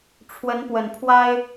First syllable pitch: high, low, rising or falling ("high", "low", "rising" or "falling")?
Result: rising